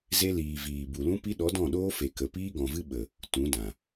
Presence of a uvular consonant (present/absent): absent